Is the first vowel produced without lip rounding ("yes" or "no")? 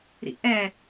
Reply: yes